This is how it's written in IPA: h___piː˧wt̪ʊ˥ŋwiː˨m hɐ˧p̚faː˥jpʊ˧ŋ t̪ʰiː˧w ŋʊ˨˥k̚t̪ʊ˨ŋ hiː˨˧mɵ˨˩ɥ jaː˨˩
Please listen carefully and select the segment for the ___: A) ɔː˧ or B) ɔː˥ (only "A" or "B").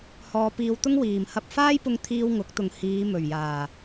A